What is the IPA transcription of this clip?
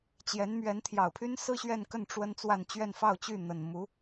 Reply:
t͡ɕjɛ˧˥n mɥɛ˧˥nt̪ʰjɑ˨˩ʊ̯pʰy˥nsɹ̩˥ ɕɥɛ˥˧nkə˥˩n ʈ͡ʂwə˥n t͡swa˥˧n t͡ɕɥɛ˥˧nfɑ˥˧ʊ̯t͡ɕy˥˩n̪ə˨˩n mu˧˥

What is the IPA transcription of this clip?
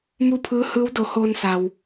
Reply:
mu˥˨pʰɯː˧˥hɯː˧˥wdo˩˧ hoː˧nsa˩w

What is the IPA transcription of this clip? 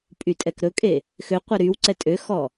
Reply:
pʼytʼɛkɾɵkʼe | xøqʷɛ ɾyw ǀɛtʼøxɔ

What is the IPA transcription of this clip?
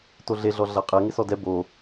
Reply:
toɮeɮɔ ɮaqʼɛ ŋɪsɔdɛ bo

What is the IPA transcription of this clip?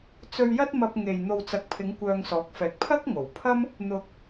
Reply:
t͡sɵ˧ɥjɐ˥t̚mɐ˧p̚ ŋe˨j n̪o˨wt͡sɐ˨k̚pʰɪ˨˧ŋ kʷœː˧ŋsɔː˨˥k̚fɛː˨k̚ pʰɐ˥k̚ŋo˨˩wpʰɐ˥m | n̪ʊ˨k̚

